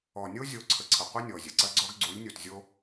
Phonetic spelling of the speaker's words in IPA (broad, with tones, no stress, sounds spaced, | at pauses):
ɔ˨ nʲ o˦ zʲ o˨˦ ǀʰ ə˨ ǀʰ ə˨ qʷ ɐ˦ nʲ ɔ˨ zʲ ə˨ ǀ ɐ˦ ɡ͡ǀ ɔ˦ ɡ ɡ͡ǀ u˨˦ lʲ nʲ o˨ t zʲ o˦